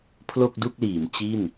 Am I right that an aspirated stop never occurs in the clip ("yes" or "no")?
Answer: no